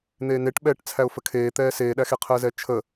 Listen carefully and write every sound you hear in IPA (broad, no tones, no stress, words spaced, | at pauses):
n̪eːneʈɓɛːʈ t͡sʰæʊ̯fəkʰeːt̪ɛː seːɗæxe qʰəːzɛt͡ʃʰə